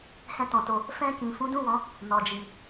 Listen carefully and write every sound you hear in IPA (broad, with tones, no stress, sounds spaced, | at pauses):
h ɛ̃˧ t ɔ̃˨ t o˨ | f ɛ̃˧ k ĩ˨ f ũ˨˦ d ũ˦˨ w ɔ̃˨˦ | n ɔ˨ d͡ʒ i˨